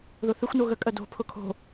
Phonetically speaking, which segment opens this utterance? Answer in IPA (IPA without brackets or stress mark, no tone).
ð